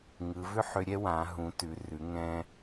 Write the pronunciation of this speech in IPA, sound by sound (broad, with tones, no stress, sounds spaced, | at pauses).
ŋ ɯ˩˧ v ʏ˥ ħ ʏ˧ ɾʲ ɛ˥ w ã˩˧ ɦ ũ˩˧ t ʉ˩˧ r ʉ˩˧ ŋ ɛ̃˧